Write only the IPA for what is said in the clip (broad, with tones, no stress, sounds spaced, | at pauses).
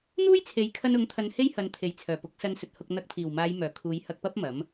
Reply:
n̪ uː˥ j t͡sʰ e˨˥ j kʰ ɐ˧ n ʊ˨˥ ŋ t̪ʰ ɐ˧ n h e˥ j h ɐ˨ n t̪ʰ e˨˩ j t͡sʰ œː˨˩ p ʊ˨˥ k̚ s ɐ˧ n s ɵ˨ t̚ h ʊ˧ k̚ n̪ ɐ˧ k̚ t̪ʰ iː˨˩ w m aː˨˧ j m œː˨˩ kʰ uː˨˧ j h ɐ˧ k̚ p ɐ˥ p̚ m ɐ˨˥ m